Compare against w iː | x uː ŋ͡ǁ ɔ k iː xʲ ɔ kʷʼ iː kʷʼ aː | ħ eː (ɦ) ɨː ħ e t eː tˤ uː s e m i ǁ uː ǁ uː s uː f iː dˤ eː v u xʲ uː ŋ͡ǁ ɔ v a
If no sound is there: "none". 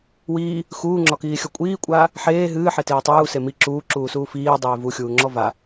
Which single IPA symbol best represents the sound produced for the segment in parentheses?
ɦ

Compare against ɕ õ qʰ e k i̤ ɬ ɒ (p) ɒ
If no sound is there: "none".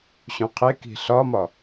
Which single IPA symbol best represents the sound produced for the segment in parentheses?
m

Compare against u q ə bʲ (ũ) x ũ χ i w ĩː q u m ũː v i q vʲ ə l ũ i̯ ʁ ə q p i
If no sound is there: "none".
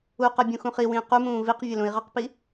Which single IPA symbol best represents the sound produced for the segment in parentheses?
ũ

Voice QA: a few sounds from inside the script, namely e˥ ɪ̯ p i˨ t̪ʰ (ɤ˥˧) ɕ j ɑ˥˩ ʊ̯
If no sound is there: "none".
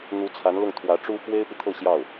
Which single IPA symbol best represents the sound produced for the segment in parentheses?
ɤ˥˧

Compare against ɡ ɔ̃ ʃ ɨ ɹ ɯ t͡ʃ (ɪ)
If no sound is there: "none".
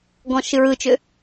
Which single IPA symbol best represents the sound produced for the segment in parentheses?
ʏ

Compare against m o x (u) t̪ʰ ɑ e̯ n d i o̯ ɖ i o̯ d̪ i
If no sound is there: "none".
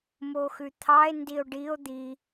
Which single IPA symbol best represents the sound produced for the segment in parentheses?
ʉ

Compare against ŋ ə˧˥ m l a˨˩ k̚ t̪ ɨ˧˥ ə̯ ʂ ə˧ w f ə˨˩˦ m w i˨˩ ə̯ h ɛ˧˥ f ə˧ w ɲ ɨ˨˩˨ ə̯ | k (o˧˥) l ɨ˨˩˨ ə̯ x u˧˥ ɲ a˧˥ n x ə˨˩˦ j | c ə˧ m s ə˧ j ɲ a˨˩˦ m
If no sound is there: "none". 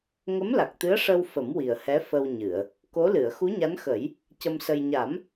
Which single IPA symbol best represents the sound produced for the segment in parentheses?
o˧˥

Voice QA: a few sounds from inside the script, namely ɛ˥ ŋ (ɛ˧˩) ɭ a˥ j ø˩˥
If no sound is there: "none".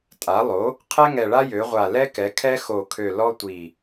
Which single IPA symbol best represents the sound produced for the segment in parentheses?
ɛ˧˩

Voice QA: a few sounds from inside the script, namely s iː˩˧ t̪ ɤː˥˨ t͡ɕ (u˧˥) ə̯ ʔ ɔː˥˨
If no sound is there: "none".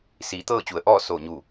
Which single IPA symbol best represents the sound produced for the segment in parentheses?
u˩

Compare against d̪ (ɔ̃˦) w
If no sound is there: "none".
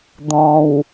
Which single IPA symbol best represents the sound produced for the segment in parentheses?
ɔ̃˨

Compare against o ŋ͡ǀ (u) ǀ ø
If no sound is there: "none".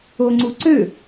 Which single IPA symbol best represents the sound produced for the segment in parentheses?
u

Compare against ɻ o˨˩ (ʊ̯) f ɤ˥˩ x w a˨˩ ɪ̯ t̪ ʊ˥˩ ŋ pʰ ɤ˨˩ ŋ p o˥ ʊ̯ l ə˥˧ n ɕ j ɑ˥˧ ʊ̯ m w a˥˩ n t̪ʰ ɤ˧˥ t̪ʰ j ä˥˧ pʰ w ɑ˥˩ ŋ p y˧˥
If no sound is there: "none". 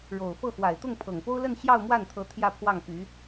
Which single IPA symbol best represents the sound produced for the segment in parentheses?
ʊ̯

